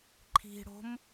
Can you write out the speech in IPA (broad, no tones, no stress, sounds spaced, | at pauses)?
ǃʰ i̤ ɽ o̤ m